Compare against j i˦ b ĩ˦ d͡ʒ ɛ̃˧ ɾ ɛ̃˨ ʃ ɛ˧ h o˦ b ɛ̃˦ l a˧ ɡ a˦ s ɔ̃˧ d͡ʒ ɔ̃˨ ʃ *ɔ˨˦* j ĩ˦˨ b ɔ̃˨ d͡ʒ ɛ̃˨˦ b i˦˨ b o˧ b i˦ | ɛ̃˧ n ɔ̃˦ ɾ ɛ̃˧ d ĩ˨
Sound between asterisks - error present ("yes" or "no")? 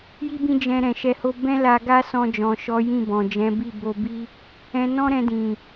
no